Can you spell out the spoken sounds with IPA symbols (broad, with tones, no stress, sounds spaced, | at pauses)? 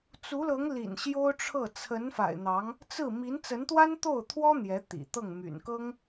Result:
t͡s u˧˥ l ɤ˧˥ ŋ l ḭ˨˩ n ɕ j o˥ ʊ̯ ʈ͡ʂʰ ɤ˥˩ t͡sʰ ə˧˥ n f a̰˨˩ ɪ̯ n̪ ɑ˧˥ ŋ | t͡s ɹ̩˥˩ m i˧˥ n t͡s ə˧˥ n t̪ w a˥ n t̪ o˥˩ ʊ̯ t̪ʰ w ɔ˥ n̪ j ɛ˧˥ t̪ ḭ˨˩ t̪ ɤ˥˩ ŋ m y̰˨˩ n k ɤ˥ ŋ